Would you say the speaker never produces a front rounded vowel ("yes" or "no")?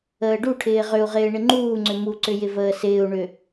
no